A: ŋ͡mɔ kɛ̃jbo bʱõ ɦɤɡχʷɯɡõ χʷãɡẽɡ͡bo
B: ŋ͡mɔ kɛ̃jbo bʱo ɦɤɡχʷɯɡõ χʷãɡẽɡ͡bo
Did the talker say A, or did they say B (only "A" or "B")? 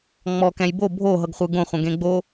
B